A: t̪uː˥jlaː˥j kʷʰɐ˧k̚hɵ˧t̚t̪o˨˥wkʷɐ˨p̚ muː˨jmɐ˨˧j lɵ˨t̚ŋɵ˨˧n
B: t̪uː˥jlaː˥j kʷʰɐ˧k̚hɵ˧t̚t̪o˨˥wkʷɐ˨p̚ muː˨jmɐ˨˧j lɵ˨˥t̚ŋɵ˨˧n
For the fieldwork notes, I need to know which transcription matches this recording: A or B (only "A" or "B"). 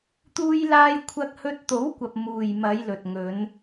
A